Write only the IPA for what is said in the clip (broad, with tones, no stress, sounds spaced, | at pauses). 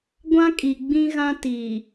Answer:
ɡʷ ã˦ kʼ i˨ ɡ͡b ĩ˦ ɣ ã˦ t iː˨